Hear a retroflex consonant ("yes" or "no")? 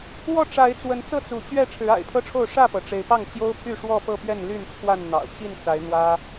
yes